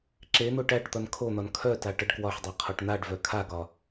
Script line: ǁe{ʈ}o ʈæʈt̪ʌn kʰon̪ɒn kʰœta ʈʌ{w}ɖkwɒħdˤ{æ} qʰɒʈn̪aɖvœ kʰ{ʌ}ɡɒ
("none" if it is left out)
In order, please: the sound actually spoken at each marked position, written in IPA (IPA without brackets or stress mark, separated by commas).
n̪, none, a, a